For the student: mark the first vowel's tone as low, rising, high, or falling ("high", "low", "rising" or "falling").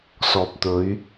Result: low